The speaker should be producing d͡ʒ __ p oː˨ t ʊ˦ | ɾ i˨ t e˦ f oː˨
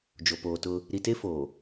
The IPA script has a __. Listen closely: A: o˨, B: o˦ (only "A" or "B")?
A